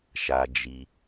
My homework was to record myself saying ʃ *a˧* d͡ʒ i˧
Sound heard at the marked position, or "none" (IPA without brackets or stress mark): a˧